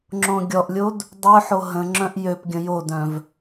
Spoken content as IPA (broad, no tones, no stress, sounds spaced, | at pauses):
ŋ͡ǁ õ ɡʲ ɔ ʔ lʲ o d | dˤ ø ħ o ɦ ə̃ ŋ͡ǁ œ̃ ʔ j ø p ɡʲ ə̃ j o d œ̃ v